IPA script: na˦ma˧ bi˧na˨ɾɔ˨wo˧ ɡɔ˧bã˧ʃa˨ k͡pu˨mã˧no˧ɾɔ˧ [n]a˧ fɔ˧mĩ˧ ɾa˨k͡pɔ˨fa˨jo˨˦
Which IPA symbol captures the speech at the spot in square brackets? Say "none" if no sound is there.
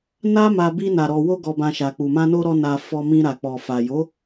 n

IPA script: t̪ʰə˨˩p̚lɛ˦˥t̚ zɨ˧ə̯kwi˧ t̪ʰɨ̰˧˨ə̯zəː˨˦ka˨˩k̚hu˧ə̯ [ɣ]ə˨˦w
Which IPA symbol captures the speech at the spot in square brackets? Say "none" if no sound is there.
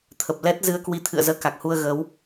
ɣ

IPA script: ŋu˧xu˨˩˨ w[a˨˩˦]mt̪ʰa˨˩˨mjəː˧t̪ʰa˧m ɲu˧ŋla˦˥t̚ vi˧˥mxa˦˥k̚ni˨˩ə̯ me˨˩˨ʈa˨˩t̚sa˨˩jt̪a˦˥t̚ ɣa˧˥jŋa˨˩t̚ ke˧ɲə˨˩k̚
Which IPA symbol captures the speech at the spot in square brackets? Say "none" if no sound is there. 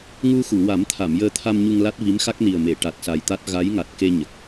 a˨˩˦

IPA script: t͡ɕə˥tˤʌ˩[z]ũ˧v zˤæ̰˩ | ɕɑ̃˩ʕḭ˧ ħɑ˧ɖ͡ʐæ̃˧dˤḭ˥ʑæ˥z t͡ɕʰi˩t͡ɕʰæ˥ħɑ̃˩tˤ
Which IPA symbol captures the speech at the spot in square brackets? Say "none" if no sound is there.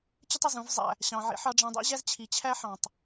z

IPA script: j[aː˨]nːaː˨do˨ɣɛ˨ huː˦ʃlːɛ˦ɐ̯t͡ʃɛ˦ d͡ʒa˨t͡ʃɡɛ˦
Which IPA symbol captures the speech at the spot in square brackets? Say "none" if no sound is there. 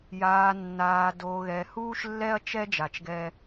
aː˨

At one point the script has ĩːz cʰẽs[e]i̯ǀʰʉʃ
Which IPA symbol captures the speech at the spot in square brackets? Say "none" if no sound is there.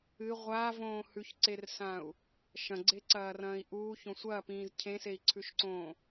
e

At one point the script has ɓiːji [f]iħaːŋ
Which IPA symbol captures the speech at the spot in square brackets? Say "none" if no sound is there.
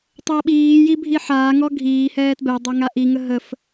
bʱ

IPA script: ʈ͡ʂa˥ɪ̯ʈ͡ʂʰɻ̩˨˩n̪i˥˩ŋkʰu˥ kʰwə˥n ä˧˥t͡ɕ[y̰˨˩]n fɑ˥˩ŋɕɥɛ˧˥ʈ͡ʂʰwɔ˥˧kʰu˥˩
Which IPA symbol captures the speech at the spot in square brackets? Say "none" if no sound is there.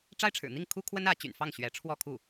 y̰˨˩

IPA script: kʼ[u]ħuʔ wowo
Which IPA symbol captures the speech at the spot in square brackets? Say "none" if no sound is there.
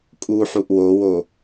u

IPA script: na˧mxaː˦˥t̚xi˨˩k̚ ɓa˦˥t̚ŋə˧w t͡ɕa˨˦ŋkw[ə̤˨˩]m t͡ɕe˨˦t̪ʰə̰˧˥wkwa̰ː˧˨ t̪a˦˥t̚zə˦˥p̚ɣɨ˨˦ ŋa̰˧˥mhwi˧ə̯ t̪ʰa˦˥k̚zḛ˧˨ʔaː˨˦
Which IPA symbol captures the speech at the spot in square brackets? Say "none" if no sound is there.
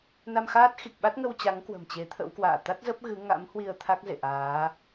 ə̤˨˩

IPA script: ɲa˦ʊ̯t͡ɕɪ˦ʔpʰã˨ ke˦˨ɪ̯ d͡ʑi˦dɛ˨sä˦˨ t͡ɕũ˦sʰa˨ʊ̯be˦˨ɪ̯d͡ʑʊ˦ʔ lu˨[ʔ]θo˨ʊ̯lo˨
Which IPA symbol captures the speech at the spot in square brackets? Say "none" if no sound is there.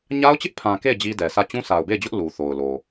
none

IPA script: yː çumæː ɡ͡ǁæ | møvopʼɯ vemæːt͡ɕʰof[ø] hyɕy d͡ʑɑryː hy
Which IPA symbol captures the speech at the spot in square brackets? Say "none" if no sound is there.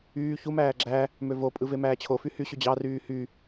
y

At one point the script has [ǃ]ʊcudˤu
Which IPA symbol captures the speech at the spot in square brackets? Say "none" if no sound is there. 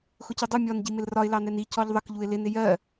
x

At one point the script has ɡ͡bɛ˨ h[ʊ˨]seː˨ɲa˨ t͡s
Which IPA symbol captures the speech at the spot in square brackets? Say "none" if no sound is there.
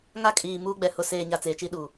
ʊ˨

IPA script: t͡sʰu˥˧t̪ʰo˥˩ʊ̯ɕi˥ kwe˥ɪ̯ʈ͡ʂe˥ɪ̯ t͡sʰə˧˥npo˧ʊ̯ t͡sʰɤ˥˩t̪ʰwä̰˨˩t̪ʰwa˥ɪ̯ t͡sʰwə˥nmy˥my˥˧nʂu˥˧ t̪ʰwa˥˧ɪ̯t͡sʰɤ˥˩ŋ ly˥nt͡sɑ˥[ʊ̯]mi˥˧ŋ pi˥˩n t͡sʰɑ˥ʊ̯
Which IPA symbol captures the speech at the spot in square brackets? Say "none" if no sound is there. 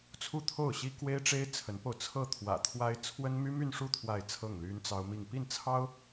ʊ̯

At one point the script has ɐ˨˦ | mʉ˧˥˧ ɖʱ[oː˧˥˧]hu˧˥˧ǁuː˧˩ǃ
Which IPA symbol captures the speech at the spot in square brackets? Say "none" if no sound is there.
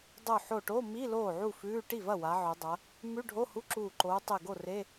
o˧˥˧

